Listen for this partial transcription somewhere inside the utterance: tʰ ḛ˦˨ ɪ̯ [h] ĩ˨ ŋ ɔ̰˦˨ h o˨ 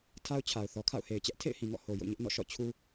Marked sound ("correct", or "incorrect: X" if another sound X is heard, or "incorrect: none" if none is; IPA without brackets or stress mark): correct